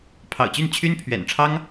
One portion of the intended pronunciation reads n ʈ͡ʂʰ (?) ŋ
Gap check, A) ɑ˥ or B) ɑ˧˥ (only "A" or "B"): A